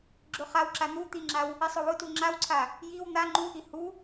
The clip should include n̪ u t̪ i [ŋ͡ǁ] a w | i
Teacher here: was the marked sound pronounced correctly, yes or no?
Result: yes